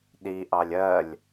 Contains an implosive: yes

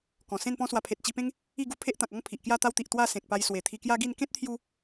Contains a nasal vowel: yes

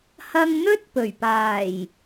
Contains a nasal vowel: no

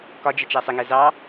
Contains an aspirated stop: no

